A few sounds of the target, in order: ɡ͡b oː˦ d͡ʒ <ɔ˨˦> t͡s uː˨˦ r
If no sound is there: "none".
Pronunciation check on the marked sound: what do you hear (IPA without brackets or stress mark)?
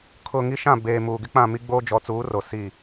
ɔ˨˦